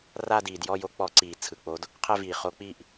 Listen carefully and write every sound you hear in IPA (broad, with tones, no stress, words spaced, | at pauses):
ra˥˧diː˨˩djɔ˥˧jo˧˥ k͡pɔ˧˥ǀiː˨˩t͡sʰɯ˨˩k͡po˧˥d | qʰɛ˥˧viː˨˩ χo˧˥k͡piː˥˧ʔ